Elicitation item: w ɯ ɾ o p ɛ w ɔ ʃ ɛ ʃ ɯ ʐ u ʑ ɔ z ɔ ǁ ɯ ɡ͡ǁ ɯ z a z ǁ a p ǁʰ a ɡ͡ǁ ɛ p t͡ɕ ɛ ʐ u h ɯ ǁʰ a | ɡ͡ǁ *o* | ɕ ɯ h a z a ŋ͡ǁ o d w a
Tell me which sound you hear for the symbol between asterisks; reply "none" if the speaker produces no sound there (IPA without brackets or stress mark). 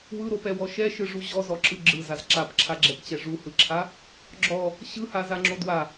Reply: ɔ